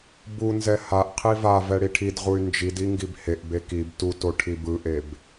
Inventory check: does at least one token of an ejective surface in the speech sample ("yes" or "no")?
no